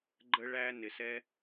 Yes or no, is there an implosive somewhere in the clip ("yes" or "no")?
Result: no